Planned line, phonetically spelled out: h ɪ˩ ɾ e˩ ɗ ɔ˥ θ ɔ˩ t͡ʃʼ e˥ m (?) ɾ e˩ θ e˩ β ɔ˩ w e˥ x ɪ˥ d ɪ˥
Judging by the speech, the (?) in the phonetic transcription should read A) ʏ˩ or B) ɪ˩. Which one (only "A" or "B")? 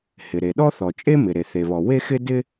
B